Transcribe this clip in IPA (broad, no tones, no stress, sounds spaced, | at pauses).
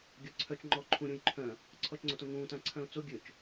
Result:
ɡʲ œ ǀʰ œ t͡ʃ ŋ͡ǃ ɔː ǃʰ ũ ɾʲ ũ j ǃʰ œ̃ | ǀʰ ɔ t͡ʃ ŋ͡ǀ o t õ ŋ ũː t ã ǀʰ œ̃ ʊ̯ t͡s o ɡʲ ø t͡ʃ